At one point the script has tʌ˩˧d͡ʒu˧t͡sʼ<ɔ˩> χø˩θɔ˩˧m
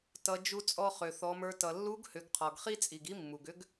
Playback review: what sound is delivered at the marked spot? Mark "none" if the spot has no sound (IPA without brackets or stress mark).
ɔ˧